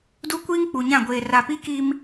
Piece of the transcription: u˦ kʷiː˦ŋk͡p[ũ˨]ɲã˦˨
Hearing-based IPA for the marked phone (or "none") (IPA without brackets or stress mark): u˨